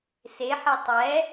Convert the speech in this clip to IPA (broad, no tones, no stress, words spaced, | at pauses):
seħi tˤɛ